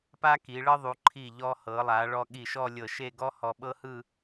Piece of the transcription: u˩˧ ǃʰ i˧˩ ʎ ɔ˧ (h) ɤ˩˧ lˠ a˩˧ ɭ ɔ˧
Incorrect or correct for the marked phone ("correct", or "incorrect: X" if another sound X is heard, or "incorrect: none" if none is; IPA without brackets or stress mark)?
correct